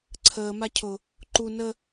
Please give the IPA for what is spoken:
ǀʰ əː m a cʰ ʊ | ǃ u n ə

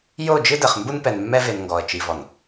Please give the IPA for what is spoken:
j o˦˨ d͡ʒ ɨ˦ d ɘ˨ χ m b u˦ n p ɛ˨ n mː ɛ˦ v e˨ n ŋ ɡ ɔ˨ ə̯ t͡ʃ i˨ v ɔ˨ n

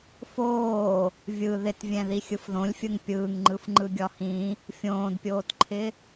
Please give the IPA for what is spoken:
f oː | vʲ ɯ ð ɪ t vʲ ɛ̃ ð i xʲ ɯ f ð õ lʲ fʲ ɯ ŋ pʲ ɯː ŋ ŋ͡ǃ ɯ f ŋ͡ǃ ɯ ɡʲ ɒ h ĩ | fʲ õː d pʲ oː t ǃʰ ɪ

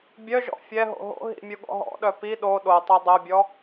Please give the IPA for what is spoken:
bʲ œ ʒ ɔ̰ fʲ ɛ ɦ o̰ ɦ o̰ ɦ ḭ mʲ u ɠ ɔ̰ ɦ ɔ̰ ɗ œ p i ɗ o ɗ o tˤ o dˤ œ bʲ ɔ

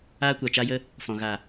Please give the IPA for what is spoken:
aː˦ kʷ a˨ t͡ʃ a˦ j ə˦ | f ɔ̃˨ ɣ a˨

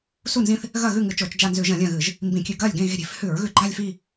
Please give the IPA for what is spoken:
s u˦˨ n z ĩ˦˨ θ | ɣ ɐ˦˨ ɣ ʉ˦˨ ŋ ɨ˧˩˧ t͡ʃ oː˧˩˧ t͡ʃ d͡ʒ a˦˨ n z ʉ˧˩˧ ʒ ɐ̃˧˩˧ lʲ ɐ̃˦˨ ɣ ɨ˧˩˧ ʒ | m b ĩ˧˩˧ kʲ ʉ˧˩˧ ɡ ɐː˦˨ lʲ ɡ ẽ˦˨ ɣ e̤˦˨ ɾʲ e̤˧˩˧ f h ʉ˧˩˧ ɹ ɣ ʉ˧˩˧ ɡ͡ǃ a˦˨ lʲ f i˦˨

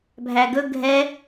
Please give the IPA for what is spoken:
bʱ æ ɡ ɵ ɡʱ ɛ

